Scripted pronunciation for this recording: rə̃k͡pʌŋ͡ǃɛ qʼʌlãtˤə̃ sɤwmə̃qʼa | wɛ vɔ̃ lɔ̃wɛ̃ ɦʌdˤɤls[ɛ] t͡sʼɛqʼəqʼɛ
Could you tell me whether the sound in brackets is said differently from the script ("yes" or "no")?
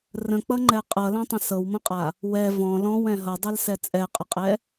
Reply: no